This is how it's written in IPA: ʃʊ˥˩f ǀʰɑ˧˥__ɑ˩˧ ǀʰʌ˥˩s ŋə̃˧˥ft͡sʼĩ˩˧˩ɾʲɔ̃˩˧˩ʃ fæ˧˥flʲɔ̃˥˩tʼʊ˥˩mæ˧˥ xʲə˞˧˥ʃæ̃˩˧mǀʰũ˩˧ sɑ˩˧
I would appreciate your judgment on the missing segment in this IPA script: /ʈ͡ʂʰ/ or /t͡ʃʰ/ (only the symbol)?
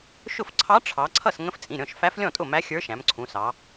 ʈ͡ʂʰ